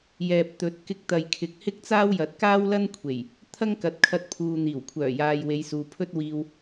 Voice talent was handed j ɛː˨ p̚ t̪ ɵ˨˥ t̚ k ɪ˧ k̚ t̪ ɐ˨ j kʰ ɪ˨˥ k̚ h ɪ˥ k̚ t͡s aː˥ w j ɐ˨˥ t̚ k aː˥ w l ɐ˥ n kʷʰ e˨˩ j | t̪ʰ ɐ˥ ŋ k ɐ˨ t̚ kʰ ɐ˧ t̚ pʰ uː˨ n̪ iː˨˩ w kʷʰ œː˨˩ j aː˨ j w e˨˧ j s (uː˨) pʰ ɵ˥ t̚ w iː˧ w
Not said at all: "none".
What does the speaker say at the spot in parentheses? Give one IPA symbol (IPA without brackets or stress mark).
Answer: uː˨